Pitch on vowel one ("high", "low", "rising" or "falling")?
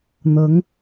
rising